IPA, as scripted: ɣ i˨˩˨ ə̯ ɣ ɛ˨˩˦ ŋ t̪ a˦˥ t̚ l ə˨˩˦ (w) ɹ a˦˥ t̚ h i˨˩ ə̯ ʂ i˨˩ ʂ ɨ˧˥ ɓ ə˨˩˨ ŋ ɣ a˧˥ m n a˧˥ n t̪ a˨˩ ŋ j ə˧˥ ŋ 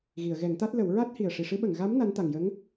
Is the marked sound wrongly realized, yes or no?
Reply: no